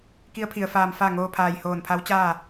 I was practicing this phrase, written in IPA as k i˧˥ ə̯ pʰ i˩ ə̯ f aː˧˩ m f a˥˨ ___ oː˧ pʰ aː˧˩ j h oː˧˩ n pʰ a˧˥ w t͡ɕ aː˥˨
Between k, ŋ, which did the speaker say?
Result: ŋ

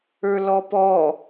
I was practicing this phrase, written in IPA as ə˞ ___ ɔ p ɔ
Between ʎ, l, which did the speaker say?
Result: l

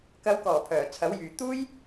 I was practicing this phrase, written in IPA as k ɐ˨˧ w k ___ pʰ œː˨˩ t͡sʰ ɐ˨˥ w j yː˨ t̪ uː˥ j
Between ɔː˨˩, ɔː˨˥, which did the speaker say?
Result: ɔː˨˩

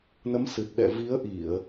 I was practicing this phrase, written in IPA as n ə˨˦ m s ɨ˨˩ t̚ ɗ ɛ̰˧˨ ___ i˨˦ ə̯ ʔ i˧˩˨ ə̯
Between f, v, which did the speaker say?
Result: v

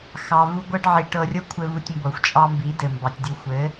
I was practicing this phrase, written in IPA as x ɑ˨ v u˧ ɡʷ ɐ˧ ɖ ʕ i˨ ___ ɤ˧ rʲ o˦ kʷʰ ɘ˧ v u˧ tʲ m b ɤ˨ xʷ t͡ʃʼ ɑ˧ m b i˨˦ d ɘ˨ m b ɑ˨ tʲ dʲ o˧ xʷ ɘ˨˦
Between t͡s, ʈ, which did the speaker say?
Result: ʈ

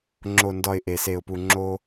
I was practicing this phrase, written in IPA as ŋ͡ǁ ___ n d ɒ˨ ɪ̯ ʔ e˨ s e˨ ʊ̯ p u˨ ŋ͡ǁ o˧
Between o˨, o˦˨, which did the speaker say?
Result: o˨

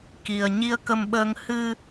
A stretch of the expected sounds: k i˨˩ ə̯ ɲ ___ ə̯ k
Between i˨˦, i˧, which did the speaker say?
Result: i˧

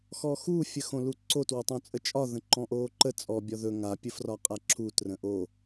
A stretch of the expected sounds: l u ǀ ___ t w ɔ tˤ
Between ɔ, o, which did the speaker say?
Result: o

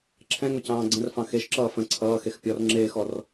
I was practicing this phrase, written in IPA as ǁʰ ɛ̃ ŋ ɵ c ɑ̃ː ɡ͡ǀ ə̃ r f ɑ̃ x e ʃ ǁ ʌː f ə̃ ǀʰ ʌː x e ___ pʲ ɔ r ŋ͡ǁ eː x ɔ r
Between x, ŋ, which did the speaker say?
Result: x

